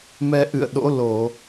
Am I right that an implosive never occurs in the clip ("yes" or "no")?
no